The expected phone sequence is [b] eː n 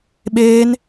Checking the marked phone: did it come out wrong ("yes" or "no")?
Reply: yes